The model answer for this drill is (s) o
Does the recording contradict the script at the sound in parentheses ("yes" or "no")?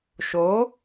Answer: yes